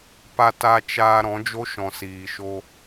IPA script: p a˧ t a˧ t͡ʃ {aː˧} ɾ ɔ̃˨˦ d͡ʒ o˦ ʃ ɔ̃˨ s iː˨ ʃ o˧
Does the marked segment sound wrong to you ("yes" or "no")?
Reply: no